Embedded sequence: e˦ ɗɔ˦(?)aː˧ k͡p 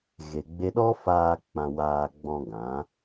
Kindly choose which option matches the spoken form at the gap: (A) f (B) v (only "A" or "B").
A